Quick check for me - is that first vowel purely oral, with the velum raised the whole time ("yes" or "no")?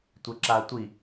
yes